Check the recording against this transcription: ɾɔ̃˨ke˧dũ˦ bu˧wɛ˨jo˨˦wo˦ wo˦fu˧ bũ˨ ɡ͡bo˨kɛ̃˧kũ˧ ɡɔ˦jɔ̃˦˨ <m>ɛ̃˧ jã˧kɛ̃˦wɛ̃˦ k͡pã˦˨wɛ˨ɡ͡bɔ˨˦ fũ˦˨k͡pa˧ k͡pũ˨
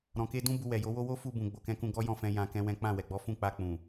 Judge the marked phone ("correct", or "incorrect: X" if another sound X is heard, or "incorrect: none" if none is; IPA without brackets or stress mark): incorrect: f